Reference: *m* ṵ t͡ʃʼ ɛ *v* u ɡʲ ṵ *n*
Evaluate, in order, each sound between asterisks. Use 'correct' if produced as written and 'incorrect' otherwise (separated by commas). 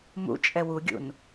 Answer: correct, incorrect, correct